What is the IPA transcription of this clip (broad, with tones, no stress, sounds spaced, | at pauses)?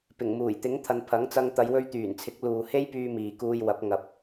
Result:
p ɪ˨˩ ŋ m uː˨˩ j t̪ ɪ˨˥ ŋ t̪ʰ ɐ˨ n pʰ ɐ˨˥ ŋ t͡s ɐ˧ ŋ t̪ ɐ˨˧ j w ɵ˧ ɥ t̪ yː˨˩ n t͡sʰ ɪ˨˥ k̚ l uː˨ h e˥ j p yː˧ m iː˨ k uː˧ j w ɐ˨˥ p̚ ŋ ɐ˨ p̚